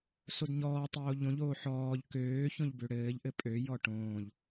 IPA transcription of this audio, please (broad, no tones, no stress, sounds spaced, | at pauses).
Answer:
s o d ɲ ɔː tˤ oː ʎ õ ʎ oː ħ ɔː ʎ k øː ç õ ʎ b ø ɽ ɘː ʎ ʔ ɘ pʼ ø j ɔ ʈ õː ʎ